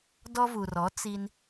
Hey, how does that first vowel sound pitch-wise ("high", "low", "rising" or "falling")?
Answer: high